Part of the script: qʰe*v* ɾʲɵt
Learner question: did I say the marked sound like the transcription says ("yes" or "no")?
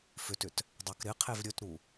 yes